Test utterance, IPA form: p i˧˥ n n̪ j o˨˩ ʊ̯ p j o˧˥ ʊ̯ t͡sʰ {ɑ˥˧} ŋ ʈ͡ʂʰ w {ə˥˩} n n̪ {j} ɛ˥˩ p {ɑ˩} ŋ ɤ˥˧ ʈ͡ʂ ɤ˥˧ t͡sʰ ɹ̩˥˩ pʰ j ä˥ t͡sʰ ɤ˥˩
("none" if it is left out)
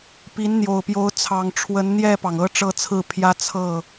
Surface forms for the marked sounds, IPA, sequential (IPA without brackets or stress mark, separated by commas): ɑ˨˩, ə˧˥, j, ɑ˩